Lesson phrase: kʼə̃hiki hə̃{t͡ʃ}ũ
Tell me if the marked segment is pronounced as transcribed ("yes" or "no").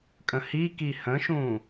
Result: no